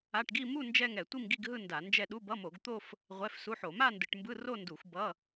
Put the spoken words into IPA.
a˧˥˧ ʈ ɡ i˥˧ m u˥˧ n d͡ʒ ɛ˥˧ ŋ ɛ˧˩˧ tʷ i˥˧ m ɡ i˥˧ ɡ ɦ ɯ˥˧ n d a˧˩˧ n d͡ʒ ɛ˥˧ ɗ u˧˥˧ b ʌ˧˥˧ m o˧˩˧ ɡ t̪ o˥˧ f | ʁʷ ɛ˧˥˧ f s u˧˥˧ ħ o˧˩˧ m a˥˧ n d ɯ˧˩˧ ʈ m b ɯ˧˥˧ r o˥˧ n d u˧˩˧ xʷ b ʌ˧˥˧

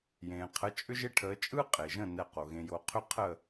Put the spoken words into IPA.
j ẽː˩ qʰ ə˩˥ t͡ʃʼ ʏ˥ ʒ e˥ ʈʰ əː˩˥ t͡ʃʼ ɯ˥ qʼ e˩ ʒ ə̃˥˩ n ɛ˥˩ q o˩ ɣ ẽ˧ j o˥˩ qʰ ʏ˥ qʰ əː˥˩

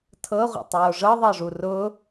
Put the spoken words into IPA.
tʰ ɤ ʁʷ ə̰ tˤ oː ʐ ɤ ðˤ ɤ ʐ u r ʊ

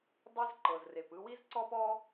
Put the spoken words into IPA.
dˤ e˥ z ǃ ɤ˩ z r e˩ p ɯ˧ w i˥ z ǀ ɔ˥ p ɔ˥

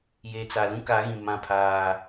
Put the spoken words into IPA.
j e˨ t͡s a˨ l ũ˦ k a˨˦ ɣ ĩ˨ m ã˦˨ pʰ aː˦

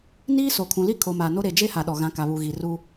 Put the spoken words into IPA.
n iː˦ s o˨ kʰ ũ˨ l i˦ kʰ o˨ m a˨ n o˦ ɾ e˨ d͡ʒ e˦ h a˨ ɗ ɔ˨ ɣ ã˨˦ k a˨ β u˨ ɣ i˨ r u˦

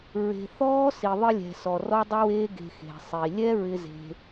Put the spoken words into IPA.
ɹ e̤˨ θ ɔː˦ s i˨ ðˤ ɪ˧ lʲ ɛ̤˨ s ɔ˨ r ɔ˦ dˤ ʊ˦ w eː˦ ɡ e̤˧ x e̤˨ sˤ i˨ lʲ ɛ˦ ɹ ɪ˦ z e̤˧

